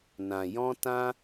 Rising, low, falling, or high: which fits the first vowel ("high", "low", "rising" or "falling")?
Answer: low